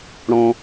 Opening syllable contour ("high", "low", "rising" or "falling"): high